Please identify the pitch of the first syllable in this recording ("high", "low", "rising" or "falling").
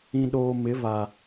low